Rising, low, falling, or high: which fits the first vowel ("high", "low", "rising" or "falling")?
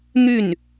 falling